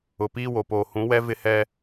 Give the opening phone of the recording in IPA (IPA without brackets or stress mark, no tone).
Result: ʊ